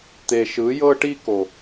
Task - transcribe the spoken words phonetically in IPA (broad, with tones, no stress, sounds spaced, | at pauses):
t̪ e˨ ʃ ɯ˨˦ j ɤ˦ ʈ i˦ k o˨